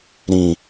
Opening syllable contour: low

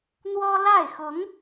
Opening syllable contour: high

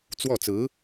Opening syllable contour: falling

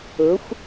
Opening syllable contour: rising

